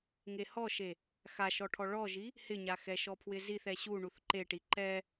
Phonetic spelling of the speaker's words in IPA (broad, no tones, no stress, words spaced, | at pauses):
ŋehɔʃe | xaʃɔʈʰɔ ɭɔʒi | hɪɲa xɛʃɔpʰwɪziθ ɛɕu ɳuθǃeʈi ǃɛ